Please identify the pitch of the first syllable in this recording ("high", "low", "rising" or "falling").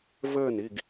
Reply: falling